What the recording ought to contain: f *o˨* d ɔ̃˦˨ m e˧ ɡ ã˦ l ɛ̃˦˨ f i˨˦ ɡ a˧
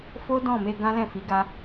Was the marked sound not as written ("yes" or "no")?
yes